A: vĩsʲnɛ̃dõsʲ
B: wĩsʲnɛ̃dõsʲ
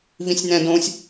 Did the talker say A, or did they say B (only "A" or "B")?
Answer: A